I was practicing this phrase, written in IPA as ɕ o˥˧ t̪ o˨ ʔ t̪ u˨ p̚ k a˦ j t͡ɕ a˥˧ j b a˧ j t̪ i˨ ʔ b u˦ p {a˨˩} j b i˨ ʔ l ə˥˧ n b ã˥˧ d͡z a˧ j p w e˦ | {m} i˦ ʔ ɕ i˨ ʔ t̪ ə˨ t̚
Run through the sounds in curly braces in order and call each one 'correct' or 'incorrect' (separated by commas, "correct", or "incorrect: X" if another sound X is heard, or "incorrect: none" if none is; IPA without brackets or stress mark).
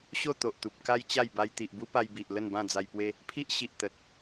incorrect: a˧, incorrect: pʰ